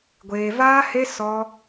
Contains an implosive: no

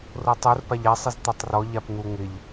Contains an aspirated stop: no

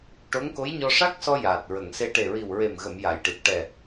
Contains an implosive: no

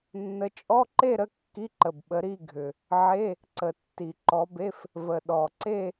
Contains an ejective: yes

